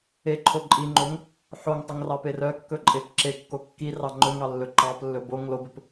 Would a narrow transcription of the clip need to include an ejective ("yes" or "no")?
yes